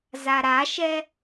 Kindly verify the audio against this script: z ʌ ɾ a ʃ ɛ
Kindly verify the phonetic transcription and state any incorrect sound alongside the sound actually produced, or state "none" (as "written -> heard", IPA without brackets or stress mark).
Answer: ʌ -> a